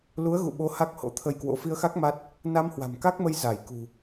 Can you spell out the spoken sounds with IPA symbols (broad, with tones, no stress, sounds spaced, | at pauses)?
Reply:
l u˨˦ ə̯ ɣ ṵ˧˨ ɓ o˨˦ h a˦˥ k̚ h o̰˧˥ t̪ʰ ə˧ j k w o̰˧˥ f i˧ ə̯ x a˦˥ k̚ m a˦˥ t̚ | n a˧ m h w a̤˨˩ m k a˦˥ k̚ m ə˧ j z a˧˩ j k ṳ˨˩